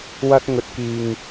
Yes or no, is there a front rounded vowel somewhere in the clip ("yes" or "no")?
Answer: no